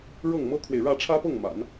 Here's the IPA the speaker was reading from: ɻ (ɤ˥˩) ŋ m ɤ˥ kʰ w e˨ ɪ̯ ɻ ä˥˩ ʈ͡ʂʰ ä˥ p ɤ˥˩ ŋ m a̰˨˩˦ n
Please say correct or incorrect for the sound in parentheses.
correct